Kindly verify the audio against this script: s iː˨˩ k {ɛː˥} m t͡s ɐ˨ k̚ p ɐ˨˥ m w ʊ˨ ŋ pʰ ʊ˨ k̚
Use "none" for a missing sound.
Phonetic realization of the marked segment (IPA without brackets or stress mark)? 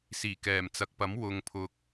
ɛː˨˩